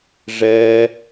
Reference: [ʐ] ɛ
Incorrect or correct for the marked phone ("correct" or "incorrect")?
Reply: correct